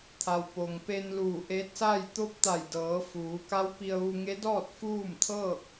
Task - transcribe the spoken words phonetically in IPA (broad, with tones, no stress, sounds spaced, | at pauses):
t̪ʰ a˩ w p o˩ ŋ p e˧ n l uː˧˩ ʔ e˧˥ t̚ s a˥˨ j t̪ o˧˥ p̚ t̪ a˧˩ j d ɤː˩˧ f uː˩˧ k a˧˥ w p i˧ ə̯ ʋ u˧ ŋ e˧˥ d ɔː˥˨ t̚ f uː˥˨ m t̪ʰ ɤː˥˨ k̚